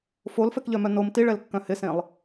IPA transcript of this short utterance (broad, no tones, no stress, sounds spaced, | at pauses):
f o l f ɛ k ʎ œ m œ n o m t i ɭ ɛ l kː œ̃ h ɪ s ẽ lˠ